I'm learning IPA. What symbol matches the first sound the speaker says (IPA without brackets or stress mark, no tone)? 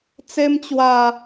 t͡s